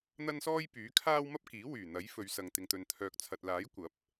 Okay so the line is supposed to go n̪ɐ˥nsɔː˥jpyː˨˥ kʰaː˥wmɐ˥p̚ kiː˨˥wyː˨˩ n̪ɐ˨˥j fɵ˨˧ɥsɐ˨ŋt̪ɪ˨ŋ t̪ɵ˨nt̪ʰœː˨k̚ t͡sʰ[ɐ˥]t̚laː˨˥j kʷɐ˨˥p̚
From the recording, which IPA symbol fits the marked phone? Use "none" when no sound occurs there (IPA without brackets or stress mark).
ɐ˨